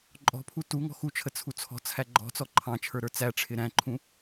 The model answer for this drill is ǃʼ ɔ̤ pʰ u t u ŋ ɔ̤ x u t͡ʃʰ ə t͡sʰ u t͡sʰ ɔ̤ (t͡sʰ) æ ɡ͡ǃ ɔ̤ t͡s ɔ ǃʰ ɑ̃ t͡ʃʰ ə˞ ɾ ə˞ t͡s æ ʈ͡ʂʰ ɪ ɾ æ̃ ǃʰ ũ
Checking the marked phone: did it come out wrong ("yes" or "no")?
no